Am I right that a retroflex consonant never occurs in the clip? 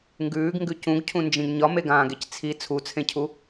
yes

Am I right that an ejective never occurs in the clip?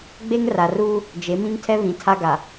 yes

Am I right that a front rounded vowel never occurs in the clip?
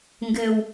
yes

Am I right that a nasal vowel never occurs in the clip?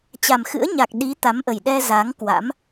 yes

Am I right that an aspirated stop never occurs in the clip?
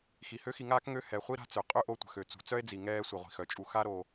yes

